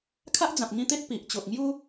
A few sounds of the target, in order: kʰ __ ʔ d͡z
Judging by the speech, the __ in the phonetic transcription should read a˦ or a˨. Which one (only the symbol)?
a˦